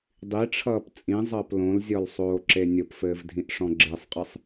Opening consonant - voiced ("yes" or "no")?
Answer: yes